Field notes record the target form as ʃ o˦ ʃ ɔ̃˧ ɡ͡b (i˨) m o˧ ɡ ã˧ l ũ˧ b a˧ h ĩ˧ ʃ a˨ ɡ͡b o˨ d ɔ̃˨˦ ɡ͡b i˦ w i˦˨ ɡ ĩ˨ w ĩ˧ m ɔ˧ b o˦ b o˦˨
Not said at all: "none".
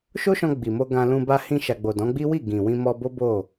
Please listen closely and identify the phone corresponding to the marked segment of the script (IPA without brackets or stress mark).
i˨